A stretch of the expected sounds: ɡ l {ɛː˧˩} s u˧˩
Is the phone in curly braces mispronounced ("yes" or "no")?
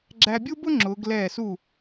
no